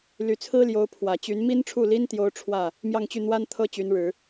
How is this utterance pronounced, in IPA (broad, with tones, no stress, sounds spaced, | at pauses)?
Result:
l y˨˩ t͡sʰ ɹ̩˥ l j o˧˥ ʊ̯ pʰ w ä˨˩ t͡ɕ y˧˥ n m i˥ n ʈ͡ʂʰ u˥˩ l i˥ n t̪ j o˥ ʊ̯ ʈ͡ʂʰ w ä˥˩ | m j ɑ˥˧ ŋ t͡ɕ y˥˩ n̪ w a˥ n t̪ʰ ɤ˥ t͡ɕ y˧˥ n ɻ ɻ̩˨˩˦